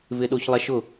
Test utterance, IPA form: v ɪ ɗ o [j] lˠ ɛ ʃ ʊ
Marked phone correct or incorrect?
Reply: incorrect